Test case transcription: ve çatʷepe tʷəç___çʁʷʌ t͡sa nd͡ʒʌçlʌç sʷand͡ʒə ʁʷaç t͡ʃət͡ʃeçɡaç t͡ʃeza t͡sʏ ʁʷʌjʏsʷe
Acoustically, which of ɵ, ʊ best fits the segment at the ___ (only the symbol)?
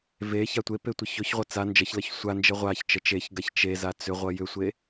ɵ